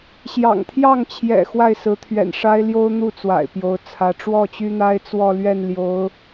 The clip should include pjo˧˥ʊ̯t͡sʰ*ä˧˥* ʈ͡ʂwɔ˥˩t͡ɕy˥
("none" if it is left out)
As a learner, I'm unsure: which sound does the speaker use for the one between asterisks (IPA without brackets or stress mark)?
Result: ä˧˥